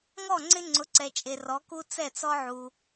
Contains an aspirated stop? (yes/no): no